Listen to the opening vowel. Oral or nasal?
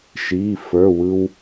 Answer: oral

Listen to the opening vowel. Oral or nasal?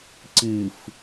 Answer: oral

